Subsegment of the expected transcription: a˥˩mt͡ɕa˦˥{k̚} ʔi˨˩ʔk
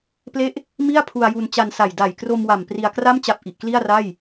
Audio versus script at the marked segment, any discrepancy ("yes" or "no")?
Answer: yes